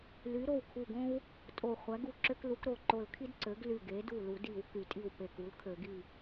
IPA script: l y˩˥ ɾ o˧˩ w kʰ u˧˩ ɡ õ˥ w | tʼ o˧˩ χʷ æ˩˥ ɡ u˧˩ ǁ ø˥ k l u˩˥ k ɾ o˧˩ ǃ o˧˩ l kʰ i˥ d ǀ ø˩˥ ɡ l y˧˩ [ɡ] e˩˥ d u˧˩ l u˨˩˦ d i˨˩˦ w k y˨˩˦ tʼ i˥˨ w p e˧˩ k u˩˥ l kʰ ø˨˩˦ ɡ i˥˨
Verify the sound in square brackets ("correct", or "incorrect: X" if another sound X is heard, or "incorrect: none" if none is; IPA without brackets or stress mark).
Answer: correct